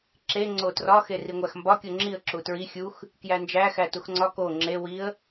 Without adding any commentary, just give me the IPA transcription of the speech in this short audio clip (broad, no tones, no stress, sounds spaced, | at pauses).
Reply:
ǁ e ŋ͡ǀ o t r ɒ x e r i ŋʷ æ x m b ɒ kʲ o ŋ͡ǁ i ə̯ ǁ u t ɹ i xʲ u x | k j æ n d͡ʒ æ x æ t u x ŋ͡ǀ ɒ k o ŋ͡ǁ e w i ə̯